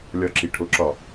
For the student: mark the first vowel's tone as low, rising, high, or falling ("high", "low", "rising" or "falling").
low